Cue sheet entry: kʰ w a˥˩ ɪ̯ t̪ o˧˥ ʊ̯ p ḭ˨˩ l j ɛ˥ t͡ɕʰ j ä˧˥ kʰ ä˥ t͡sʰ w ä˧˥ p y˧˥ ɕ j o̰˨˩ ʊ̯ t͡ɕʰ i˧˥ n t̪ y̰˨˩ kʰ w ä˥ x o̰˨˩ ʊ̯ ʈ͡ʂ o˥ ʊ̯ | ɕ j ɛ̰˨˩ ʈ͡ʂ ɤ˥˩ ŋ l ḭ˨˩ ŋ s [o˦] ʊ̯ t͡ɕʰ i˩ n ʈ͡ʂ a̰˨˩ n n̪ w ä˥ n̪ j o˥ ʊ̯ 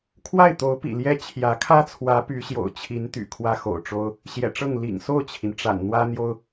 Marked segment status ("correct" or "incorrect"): incorrect